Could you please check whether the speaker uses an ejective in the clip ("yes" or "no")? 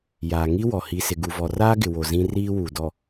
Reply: no